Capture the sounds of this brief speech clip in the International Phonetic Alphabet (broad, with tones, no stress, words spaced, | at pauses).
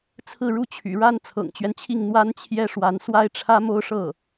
t͡sʰɹ̩˥˧ɻu˥˩t͡ɕʰy̰˨˩ɻa˥n t͡sʰɤ̰˨˩ŋt͡ɕɥɛ˦nt͡ɕʰi˥˩ŋ n̪wa˥nt͡ɕʰjɛ˥ʂwa˧˥n swa˥ɪ̯ʈ͡ʂʰä˥mo˥ʊ̯ʂɤ˥˩